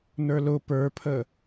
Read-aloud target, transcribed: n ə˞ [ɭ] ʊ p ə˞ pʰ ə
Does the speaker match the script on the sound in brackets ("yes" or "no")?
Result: no